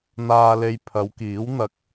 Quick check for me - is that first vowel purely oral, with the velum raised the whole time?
yes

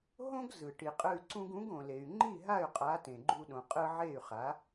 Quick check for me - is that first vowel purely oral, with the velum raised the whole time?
no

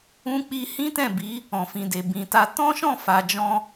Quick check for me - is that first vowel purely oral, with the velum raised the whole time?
no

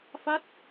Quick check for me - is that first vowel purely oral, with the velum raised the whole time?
yes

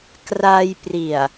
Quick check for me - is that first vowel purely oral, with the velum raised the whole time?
yes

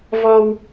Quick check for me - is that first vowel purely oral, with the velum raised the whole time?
yes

